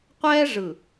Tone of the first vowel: high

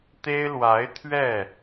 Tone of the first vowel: high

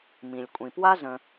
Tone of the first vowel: low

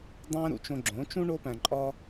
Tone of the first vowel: high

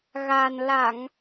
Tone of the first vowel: low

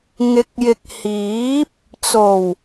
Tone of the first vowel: rising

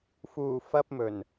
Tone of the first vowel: low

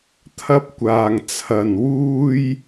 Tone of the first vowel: high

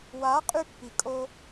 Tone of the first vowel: rising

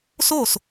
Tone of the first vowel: falling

